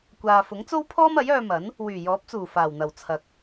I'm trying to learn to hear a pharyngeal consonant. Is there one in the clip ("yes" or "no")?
no